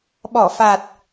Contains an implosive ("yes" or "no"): yes